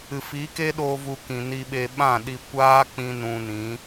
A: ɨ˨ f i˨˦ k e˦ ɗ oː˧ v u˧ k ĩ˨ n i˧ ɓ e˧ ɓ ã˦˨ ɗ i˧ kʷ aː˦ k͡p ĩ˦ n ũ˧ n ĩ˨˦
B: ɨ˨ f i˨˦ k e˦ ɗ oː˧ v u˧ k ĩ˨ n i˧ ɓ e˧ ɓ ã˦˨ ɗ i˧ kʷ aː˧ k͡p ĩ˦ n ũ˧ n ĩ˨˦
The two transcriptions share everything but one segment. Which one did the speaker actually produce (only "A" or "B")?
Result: A